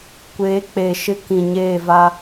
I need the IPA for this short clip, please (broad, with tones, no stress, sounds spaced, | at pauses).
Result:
kʷ eː˨˦ k͡p e˨ ʃ ɪ˦ k ĩ˨ ɲ eː˦˨ v a˦